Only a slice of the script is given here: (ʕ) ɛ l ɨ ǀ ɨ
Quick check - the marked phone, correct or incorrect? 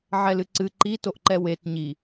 correct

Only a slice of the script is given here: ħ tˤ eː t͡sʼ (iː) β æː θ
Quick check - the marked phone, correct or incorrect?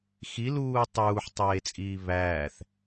correct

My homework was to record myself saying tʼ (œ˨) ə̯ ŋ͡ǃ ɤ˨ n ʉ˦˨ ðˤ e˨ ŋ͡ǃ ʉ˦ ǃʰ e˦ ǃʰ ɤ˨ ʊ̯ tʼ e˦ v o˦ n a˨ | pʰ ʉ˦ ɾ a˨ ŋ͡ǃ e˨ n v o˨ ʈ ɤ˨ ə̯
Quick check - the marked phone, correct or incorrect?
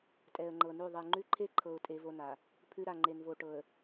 incorrect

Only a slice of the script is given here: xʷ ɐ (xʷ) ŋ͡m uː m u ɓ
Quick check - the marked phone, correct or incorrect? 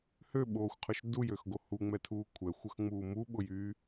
incorrect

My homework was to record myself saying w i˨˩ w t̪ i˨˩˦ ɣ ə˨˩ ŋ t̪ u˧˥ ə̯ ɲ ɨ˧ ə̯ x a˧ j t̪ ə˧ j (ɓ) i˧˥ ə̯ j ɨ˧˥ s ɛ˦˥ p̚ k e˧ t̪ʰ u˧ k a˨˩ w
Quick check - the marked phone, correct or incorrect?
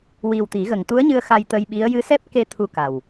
correct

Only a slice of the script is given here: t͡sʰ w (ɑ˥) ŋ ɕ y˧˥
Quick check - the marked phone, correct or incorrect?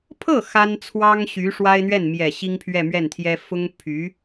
correct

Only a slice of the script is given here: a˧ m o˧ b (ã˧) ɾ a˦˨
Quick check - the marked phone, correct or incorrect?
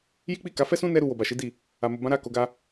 incorrect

